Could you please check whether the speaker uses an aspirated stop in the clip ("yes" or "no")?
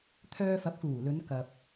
yes